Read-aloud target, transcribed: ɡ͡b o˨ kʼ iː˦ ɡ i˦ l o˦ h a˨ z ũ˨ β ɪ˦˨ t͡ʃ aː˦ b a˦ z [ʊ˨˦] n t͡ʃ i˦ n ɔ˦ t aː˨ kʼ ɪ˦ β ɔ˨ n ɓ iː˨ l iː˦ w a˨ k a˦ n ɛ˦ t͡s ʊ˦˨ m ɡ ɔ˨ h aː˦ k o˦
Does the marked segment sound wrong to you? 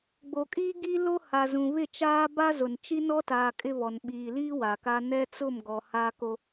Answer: yes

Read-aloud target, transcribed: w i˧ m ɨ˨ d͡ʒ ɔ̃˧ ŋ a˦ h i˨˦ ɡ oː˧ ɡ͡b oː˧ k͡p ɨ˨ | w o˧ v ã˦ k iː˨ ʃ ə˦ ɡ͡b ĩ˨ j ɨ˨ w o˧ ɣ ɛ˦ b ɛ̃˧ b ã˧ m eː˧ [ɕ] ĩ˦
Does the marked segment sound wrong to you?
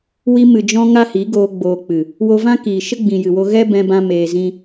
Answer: yes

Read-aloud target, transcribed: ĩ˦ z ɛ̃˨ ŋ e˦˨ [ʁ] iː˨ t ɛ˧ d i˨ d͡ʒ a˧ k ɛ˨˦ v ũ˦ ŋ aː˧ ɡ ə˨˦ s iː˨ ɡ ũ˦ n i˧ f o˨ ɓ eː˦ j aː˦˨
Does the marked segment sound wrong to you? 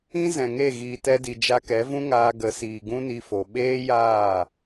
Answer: yes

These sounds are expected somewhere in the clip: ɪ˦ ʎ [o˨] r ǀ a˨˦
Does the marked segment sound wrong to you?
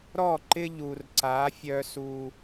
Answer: yes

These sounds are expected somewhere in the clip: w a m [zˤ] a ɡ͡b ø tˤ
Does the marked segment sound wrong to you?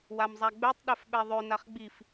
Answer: no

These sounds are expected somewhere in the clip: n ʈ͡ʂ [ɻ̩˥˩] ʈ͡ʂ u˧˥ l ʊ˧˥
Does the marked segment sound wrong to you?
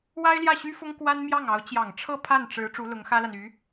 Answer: yes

